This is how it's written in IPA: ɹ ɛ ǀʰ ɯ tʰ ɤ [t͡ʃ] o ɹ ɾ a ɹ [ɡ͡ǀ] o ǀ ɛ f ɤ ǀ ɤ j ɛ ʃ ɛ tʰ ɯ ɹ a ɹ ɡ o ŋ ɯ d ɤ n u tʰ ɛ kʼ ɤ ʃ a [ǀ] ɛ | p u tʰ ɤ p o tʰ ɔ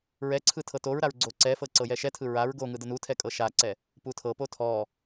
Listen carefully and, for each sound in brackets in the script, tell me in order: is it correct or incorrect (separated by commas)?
incorrect, correct, correct